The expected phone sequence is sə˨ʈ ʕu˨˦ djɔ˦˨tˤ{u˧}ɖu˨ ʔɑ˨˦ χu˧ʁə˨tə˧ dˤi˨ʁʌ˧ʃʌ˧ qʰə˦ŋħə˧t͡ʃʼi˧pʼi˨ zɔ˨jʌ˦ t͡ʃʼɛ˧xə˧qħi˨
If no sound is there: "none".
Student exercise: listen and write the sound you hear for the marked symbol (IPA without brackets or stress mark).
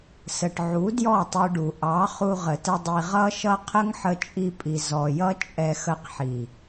u˧